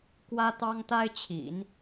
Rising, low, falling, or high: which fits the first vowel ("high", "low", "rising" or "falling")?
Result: high